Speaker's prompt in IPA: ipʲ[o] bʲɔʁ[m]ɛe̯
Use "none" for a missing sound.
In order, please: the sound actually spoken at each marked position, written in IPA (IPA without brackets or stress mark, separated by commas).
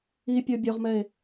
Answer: o, m